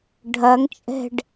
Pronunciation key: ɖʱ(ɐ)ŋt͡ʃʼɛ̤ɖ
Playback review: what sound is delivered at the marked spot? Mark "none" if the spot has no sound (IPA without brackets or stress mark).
ɐ